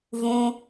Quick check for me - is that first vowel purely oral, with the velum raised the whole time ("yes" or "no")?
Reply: no